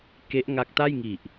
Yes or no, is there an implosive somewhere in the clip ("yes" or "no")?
no